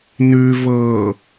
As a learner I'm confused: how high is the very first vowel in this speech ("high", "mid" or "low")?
high